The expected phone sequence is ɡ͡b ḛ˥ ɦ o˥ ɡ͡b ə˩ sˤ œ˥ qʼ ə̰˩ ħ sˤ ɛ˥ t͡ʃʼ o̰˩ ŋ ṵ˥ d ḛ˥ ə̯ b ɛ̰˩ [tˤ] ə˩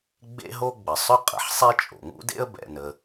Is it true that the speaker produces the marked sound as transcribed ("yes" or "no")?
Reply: no